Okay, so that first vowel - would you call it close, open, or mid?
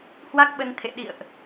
open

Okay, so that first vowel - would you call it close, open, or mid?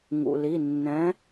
close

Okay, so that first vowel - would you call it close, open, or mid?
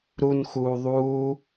close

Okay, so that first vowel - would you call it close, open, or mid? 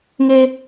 mid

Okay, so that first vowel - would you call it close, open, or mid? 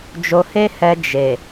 mid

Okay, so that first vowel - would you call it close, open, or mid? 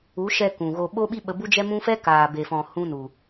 close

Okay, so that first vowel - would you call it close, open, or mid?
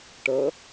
mid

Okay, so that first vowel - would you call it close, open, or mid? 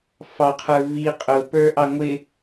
open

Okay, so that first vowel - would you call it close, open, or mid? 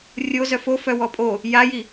mid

